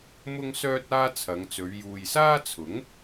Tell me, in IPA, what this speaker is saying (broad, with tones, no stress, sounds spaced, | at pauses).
m ʊ˥ ŋ s œː˥ t̚ aː˥ t͡sʰ ɐ˨˧ ŋ t͡s ɵ˨˧ ɥ j uː˨ j s aː˥ t͡sʰ ʊ˨˥ ŋ